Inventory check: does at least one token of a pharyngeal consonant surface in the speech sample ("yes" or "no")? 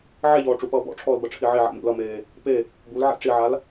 yes